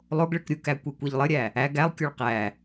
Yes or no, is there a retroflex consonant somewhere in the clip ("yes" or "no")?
yes